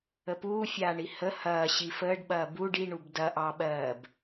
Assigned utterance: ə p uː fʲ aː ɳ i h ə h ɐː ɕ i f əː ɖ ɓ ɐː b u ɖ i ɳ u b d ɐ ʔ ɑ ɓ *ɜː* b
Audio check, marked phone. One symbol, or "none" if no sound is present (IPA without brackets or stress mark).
ɜː